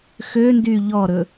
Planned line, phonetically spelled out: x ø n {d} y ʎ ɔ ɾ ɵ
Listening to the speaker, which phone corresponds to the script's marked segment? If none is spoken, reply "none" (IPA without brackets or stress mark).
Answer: d